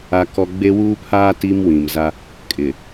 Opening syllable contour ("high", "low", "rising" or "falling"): high